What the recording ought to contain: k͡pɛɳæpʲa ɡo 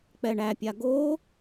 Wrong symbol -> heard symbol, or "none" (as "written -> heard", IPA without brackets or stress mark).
none